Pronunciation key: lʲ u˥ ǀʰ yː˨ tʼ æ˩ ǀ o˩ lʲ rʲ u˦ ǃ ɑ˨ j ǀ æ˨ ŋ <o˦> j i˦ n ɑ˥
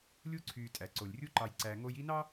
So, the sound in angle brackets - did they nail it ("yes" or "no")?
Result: yes